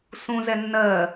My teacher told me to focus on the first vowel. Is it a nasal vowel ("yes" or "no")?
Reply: yes